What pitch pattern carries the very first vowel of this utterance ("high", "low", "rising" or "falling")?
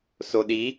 low